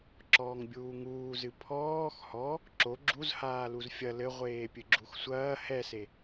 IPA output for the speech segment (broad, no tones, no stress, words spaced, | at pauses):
ǁɔːŋbʲuːŋuːzɨ pʰɔːx hɔ | ǁo ɡ͡ǁuzhaː luzfʲɐ lɘʁʷeː pʲɨɡ͡ǁuxsʷɐː hɛse